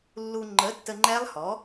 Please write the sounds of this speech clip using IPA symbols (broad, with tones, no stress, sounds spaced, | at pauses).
lː u˧ ŋ͡ǃ ə˨˥ tː ə˧ ŋ͡ǃ ɛ˦˥ lˠ h ɔ˨˥